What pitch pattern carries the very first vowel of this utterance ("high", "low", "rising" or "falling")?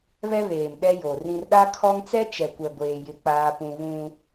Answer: high